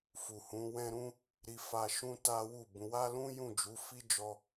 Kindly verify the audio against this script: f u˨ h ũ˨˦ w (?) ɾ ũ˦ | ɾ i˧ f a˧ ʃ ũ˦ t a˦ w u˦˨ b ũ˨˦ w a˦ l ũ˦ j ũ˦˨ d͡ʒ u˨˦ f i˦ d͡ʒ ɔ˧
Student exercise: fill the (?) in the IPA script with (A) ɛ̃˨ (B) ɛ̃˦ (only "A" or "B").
B